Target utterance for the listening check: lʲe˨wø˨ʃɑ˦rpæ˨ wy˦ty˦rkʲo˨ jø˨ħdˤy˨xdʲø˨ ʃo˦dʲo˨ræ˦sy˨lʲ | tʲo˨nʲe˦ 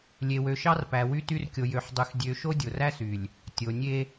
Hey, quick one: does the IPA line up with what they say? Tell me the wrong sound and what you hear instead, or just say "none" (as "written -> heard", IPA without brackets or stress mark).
none